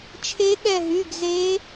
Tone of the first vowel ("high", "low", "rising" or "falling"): rising